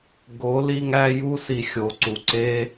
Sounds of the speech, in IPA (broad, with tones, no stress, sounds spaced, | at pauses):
ɡ o˨˦ l i˧ ŋ æ˧ j u˧ s i˨ xʲ o˨˦ ǀ u˨ ǀ e˦